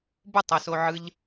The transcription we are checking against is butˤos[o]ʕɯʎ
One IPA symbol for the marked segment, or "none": o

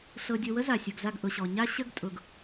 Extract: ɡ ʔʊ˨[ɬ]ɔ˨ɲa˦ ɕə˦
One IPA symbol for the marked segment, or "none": ɕ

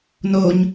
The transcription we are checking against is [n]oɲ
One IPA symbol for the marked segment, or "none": n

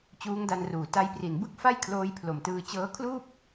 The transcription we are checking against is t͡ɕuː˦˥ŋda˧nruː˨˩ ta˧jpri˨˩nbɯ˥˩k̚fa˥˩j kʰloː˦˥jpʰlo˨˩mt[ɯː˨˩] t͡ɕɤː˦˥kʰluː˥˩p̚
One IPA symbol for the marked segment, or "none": ɯː˧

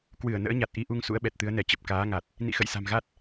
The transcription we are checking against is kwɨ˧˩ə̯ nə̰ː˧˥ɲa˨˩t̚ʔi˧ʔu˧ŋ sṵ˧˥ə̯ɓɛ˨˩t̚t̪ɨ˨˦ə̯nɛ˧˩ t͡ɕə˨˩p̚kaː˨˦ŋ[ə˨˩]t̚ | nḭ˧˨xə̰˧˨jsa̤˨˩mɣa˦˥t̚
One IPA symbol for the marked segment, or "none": a˨˩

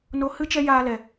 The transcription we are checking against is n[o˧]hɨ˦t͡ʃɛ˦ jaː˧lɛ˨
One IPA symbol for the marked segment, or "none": o˧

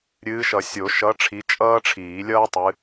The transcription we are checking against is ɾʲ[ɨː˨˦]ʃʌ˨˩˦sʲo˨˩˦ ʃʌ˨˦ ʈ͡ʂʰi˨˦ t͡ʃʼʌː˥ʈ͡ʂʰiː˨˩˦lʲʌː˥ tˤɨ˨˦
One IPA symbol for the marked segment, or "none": ɨː˨˦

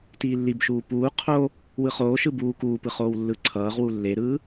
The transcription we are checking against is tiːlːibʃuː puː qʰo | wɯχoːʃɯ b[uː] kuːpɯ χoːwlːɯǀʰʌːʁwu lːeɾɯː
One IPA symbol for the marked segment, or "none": uː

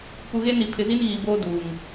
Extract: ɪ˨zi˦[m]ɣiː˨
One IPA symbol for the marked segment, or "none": n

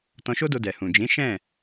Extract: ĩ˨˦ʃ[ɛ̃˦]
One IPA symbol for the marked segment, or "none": ɛ̃˦˨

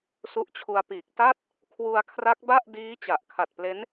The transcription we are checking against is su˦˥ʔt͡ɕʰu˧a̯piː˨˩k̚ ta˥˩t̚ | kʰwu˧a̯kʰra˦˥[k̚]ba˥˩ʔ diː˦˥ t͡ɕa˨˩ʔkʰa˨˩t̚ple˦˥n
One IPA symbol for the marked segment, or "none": k̚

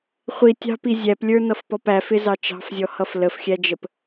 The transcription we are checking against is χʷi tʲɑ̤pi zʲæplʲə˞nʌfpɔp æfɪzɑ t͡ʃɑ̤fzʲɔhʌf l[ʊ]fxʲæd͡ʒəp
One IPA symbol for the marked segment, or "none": ə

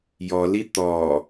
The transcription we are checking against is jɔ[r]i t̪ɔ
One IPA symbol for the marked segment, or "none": l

